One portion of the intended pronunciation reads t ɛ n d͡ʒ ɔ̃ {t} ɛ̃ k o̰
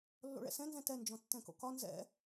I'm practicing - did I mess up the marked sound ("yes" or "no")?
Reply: yes